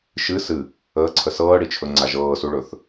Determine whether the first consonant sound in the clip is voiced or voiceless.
voiceless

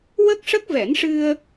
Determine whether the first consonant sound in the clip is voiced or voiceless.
voiced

